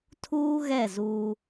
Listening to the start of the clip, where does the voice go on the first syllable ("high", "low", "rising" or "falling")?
high